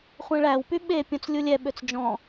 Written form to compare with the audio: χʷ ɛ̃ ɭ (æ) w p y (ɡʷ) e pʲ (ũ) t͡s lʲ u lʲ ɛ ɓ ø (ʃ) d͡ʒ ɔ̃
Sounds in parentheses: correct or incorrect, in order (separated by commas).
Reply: correct, incorrect, incorrect, incorrect